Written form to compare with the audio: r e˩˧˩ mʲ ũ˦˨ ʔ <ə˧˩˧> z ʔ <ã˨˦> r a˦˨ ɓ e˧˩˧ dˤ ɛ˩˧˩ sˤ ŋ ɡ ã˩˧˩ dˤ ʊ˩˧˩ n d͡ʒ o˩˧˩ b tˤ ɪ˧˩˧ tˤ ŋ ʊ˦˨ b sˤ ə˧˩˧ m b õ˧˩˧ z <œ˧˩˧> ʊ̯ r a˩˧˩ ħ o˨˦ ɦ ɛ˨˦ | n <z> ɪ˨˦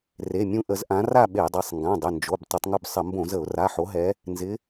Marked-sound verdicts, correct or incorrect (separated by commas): correct, correct, incorrect, correct